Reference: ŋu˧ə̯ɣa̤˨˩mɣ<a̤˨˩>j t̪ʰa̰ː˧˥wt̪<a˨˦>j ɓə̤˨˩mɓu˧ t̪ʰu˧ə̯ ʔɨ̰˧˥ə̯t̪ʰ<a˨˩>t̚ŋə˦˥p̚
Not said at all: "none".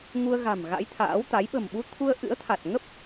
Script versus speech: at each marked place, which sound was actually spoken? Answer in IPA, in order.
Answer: a̰˧˥, a˨˦, a˨˩

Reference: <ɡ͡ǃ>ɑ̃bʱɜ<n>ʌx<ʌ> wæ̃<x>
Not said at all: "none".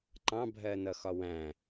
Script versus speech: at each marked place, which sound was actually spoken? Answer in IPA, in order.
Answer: ǃ, n, ɒ, none

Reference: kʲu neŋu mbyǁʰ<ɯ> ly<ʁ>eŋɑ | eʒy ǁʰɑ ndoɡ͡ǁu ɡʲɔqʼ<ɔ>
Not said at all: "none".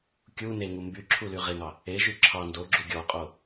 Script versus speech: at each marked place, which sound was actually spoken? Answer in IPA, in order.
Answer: u, ʁ, o

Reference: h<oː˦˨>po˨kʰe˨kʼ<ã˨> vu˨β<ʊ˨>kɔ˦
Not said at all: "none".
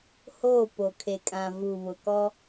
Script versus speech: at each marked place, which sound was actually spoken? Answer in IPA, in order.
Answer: oː˦˨, ã˨, ʊ˨

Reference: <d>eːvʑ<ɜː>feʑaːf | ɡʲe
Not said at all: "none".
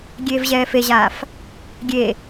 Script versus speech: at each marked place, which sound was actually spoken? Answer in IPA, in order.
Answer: ɡʲ, ɛː

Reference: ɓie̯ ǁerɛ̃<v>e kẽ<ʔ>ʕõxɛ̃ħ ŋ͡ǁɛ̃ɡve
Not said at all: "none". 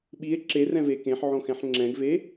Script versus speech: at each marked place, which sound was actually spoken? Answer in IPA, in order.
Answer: v, ħ

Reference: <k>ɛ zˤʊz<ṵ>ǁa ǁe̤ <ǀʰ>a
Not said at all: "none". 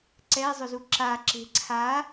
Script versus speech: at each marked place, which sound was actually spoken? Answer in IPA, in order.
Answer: ǀ, u, ǀʰ

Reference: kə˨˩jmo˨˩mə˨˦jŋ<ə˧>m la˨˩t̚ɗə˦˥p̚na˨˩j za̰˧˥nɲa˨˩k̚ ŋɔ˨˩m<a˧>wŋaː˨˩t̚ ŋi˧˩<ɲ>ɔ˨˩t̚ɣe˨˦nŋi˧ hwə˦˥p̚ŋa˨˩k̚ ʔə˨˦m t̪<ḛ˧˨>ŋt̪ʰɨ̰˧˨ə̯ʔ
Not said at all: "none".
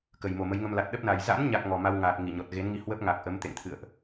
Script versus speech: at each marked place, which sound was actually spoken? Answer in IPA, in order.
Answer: ə˧, a˧, ɲ, ḛ˧˨

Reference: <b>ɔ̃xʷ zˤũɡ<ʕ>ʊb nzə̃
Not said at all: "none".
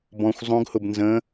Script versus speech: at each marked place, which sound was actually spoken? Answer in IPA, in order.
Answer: b, h

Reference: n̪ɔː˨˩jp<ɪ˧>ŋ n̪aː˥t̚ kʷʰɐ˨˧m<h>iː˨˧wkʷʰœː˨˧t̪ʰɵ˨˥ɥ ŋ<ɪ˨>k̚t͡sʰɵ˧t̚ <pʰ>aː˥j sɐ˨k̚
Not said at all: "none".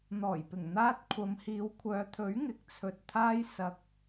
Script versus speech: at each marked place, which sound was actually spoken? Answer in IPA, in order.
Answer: ɪ˨˩, h, ɪ˨, t̪ʰ

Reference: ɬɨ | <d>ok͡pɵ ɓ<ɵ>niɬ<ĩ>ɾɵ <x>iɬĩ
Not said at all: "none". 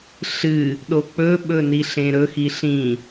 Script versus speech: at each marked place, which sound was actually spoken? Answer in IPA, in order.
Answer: ɗ, ɵ, ẽ, x

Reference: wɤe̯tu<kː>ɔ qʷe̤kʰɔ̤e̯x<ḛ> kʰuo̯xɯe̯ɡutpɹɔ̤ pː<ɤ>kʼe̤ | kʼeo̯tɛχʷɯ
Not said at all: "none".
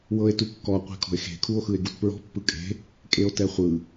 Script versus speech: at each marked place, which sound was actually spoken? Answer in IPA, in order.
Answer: kː, e̤, ɯ

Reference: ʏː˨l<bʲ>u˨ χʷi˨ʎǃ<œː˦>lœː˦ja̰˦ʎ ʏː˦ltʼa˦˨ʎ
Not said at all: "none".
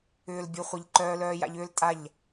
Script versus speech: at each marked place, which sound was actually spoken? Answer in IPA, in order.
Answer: bʲ, œː˦

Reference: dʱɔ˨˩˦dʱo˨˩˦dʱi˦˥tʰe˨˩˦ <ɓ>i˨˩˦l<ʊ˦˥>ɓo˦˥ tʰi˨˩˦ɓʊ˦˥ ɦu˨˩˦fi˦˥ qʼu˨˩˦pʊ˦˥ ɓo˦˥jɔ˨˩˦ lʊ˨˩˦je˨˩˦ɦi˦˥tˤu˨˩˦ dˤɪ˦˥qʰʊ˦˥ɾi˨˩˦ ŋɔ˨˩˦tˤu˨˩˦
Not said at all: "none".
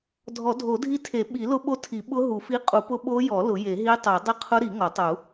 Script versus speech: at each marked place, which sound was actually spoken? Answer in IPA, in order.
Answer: ɓ, ʊ˦˥

